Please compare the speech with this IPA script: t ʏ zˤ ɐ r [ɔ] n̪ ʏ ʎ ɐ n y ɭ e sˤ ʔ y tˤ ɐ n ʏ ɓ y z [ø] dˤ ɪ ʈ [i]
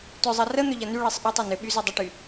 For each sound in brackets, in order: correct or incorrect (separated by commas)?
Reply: incorrect, correct, incorrect